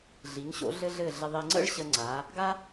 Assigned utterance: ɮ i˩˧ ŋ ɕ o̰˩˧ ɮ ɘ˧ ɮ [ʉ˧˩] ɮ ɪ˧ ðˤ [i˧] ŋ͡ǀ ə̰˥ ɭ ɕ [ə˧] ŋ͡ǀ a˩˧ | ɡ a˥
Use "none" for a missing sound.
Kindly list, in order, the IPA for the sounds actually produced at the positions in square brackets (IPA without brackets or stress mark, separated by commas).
ɘ˧˩, i˧, ə˧